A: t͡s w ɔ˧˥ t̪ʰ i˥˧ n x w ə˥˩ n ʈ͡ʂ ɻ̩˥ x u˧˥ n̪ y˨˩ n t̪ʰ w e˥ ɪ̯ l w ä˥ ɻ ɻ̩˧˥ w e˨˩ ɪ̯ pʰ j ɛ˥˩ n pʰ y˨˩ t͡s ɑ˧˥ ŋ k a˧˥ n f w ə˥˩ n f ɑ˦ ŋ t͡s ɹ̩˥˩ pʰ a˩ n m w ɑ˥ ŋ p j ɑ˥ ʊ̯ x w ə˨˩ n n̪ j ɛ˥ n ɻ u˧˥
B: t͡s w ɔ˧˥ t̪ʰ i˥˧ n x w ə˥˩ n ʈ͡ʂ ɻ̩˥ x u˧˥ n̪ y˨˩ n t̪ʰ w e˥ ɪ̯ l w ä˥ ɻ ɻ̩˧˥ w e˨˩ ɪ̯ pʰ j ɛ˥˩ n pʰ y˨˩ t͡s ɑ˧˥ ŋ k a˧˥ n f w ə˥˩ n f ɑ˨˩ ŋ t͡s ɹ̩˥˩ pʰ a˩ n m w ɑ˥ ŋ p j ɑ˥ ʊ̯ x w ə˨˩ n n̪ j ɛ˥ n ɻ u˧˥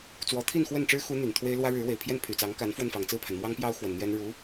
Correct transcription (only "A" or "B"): B